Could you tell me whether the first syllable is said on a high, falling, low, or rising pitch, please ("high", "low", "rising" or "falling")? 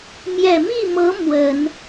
low